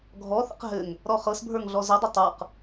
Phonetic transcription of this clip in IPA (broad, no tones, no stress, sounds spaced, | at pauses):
ɡʱ ɔ θ ə̰ q ɦ ɘ ŋ | ɾ ɔ χ ɤ s bʱ ə˞ ŋ ɮ ɔ z ɘ dˤ ɘ tˤ ə˞ q